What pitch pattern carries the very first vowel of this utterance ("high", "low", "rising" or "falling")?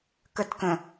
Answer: high